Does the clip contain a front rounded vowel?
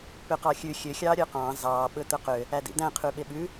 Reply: yes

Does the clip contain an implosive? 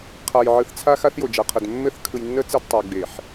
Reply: no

